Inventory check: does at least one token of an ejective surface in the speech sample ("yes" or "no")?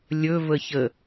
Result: no